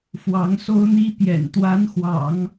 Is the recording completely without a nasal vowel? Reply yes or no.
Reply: yes